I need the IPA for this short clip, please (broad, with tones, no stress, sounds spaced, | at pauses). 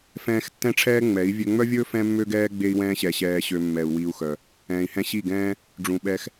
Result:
f ɛ̃ː˧ x tː ɛ̃˦ ʈ͡ʂʰ ɛː˦ ŋ͡m ɛ˨˦ i̯ vʲ ø˧ ŋ͡m œ˦ vʲ ɵː˦ f ɛ̃˦ mː ø˦ ɡ ɛː˦ ɡ͡b e˦ i̯ w ɛ̃ː˦ ɕ ɛ˧ ɕ ɛː˧ ɕ ø˧ mː ɛ˧ u̯ w i˦ u̯ x œ˧ | ɛ̃ː˨ i̯ h ɛ̃˧ ɕ i˦˨ ɡ ɛ̃ː˦ | ɖ͡ʐ ũ˨ ɓ ɛ˧ x